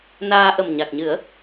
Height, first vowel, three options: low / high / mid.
low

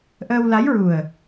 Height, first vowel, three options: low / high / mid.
mid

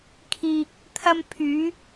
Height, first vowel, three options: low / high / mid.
high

